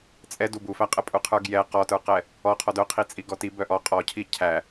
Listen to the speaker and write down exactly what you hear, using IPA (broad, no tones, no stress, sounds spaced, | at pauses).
t͡sʼ ɛ d u b u f æ qʼ ɛ pʼ u qʰ ə˞ ɡ j ɛ q ɔ t ə˞ q ɛ | ɔ qʰ ɔ d œ qʰ i t͡sʼ i ɡ ɔ t i b œ ʔ ɔ qʼ ɔ cʰ i cʰ æ